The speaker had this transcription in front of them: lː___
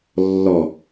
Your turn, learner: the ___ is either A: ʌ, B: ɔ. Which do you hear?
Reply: B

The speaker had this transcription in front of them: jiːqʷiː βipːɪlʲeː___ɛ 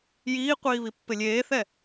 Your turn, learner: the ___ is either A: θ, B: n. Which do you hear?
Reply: A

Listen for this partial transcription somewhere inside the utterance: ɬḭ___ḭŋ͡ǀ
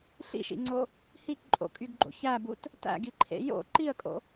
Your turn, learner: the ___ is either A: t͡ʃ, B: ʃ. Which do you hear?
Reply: B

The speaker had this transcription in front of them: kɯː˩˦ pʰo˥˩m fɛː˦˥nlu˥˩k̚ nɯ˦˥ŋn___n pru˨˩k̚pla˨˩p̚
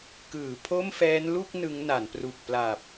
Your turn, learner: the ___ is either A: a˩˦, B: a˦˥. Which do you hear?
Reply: A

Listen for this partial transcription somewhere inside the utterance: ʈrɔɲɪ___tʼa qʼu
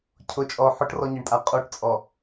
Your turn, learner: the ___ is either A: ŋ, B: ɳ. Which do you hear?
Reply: B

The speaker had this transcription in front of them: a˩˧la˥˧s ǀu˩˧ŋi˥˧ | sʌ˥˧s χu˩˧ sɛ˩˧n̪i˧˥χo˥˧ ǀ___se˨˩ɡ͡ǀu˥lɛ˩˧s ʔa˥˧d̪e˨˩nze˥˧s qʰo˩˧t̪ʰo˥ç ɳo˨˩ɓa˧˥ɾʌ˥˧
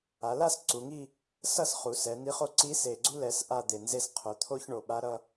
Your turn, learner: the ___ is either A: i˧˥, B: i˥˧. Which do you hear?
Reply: A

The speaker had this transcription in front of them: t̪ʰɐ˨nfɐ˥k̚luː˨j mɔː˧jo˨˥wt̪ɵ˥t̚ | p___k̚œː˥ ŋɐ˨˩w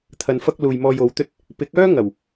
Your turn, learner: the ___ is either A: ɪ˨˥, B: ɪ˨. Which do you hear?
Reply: A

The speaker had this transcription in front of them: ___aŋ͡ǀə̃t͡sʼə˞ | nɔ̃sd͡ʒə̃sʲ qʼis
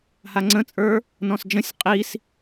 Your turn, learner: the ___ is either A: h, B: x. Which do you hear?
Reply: A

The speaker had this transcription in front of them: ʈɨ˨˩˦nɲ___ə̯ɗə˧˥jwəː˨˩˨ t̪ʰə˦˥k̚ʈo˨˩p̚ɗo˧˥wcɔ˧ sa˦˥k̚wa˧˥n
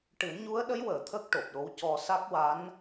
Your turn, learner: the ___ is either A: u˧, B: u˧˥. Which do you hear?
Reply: B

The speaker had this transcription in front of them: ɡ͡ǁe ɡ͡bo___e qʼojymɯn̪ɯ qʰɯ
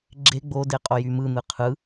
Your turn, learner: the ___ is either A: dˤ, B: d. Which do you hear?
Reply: B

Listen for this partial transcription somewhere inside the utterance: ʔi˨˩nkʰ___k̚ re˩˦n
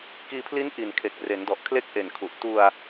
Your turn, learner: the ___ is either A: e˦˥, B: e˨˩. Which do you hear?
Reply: B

